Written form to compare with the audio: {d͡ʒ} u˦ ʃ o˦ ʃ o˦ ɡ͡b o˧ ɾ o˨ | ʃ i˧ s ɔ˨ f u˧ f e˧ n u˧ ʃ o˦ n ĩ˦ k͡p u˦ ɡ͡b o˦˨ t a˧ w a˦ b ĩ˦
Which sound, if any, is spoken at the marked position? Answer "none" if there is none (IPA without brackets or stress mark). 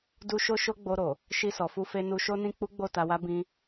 d